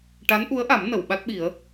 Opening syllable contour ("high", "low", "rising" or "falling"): rising